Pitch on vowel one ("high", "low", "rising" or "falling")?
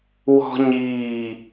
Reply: high